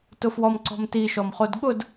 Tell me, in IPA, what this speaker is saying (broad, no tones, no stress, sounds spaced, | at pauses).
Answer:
t ʊ f w ɔ m ǀ ɔ̤ m t i ʃ ɔ m χ o d ɠ ʊ d